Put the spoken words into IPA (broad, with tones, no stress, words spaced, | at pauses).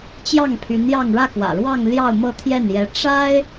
t͡ɕjɑ˥˩ŋpʰy˧˥njɑ˥˧ŋ ɻä˥˩kwä̰˨˩ɻwɑ˥˧ŋ ljɑ˥˧ʊ̯mɤ˥˧t̪ʰjɛ˥˩n jɛ˧˥ ʈ͡ʂa˥ɪ̯